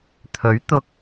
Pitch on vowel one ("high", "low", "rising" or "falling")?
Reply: rising